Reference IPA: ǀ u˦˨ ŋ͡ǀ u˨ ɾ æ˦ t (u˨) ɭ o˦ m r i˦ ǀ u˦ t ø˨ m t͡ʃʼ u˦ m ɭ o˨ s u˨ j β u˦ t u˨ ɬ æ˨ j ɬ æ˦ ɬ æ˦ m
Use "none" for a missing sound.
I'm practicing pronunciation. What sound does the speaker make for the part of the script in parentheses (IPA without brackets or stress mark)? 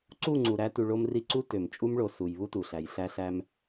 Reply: u˨